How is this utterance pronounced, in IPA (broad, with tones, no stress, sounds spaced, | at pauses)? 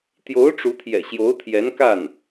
t̪ j o˧˥ ʊ̯ ʈ͡ʂ u˧˥ t̪ʰ j ɛ̰˨˩ ɕ j o˧˥ ʊ̯ t̪ʰ j ɛ˧˥ n k a˥˩ n